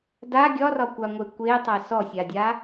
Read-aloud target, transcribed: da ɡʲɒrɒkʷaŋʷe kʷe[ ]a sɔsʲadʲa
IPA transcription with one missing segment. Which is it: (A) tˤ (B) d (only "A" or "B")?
A